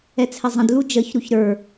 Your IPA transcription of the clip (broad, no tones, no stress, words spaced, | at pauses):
ɛt͡sʰɛzˤə̃d lud͡ʒəç ɾuçɾə˞